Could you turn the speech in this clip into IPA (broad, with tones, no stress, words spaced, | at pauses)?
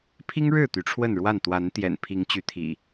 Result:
pʰi˦ŋɻɻ̩˥˨ t̪y˨˦ʈ͡ʂʰwə˥˨nɻwa˥˨n t̪wa˨˦nt̪jɛ̰˨˩n pʰi˨˦ŋ t͡ɕy˨˦t̪ʰḭ˨˩